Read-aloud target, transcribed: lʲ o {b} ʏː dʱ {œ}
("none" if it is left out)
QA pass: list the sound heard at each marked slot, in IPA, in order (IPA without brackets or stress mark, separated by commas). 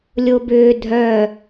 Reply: b, œ